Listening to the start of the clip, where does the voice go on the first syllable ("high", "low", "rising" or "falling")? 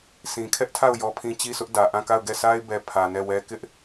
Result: low